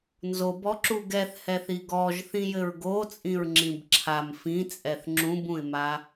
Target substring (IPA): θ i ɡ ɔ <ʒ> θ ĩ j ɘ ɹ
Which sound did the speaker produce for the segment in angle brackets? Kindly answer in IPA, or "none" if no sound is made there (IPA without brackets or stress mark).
ʒ